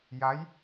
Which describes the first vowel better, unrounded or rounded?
unrounded